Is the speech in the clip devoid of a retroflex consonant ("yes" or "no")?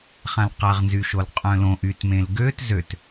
yes